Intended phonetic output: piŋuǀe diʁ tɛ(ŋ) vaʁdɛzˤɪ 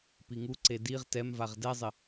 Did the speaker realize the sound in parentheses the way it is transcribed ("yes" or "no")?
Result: no